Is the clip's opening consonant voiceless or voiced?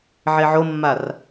voiced